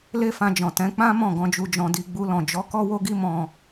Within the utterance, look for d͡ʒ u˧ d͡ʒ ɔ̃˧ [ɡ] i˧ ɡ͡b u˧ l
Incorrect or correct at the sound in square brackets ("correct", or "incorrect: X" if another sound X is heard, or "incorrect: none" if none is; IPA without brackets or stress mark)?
incorrect: d